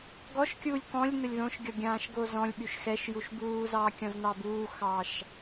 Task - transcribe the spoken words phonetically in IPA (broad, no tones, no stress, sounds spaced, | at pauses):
ɡ ɔ ʃ kʲ uː lʲ k ɔ̃ lʲ n ə lʲ ð õ ʃ ɡʲ ɔ ɡʲ ãː ʃ ɡ o z ɔ̃ lʲ ɓ y ʃ x ɛ ʃ j u ʃ b uː z ɑː kʲ ɔ̃ z n ɑ b uː x ɑː ʃ